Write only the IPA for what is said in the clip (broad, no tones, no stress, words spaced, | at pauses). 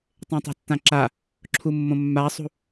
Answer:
tˤẽtˤa̤tːãǁa | ǁʰumːõmːasˤṳ